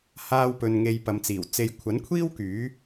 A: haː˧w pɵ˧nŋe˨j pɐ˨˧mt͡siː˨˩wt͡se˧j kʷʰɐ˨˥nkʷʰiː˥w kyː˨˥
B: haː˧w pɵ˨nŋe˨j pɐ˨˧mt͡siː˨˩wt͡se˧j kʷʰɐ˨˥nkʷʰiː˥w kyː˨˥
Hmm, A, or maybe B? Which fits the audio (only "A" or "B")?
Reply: B